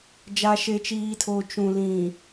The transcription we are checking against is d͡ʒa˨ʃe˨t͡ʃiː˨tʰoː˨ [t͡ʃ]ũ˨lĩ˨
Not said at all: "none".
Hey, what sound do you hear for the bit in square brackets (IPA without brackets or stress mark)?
t͡ʃ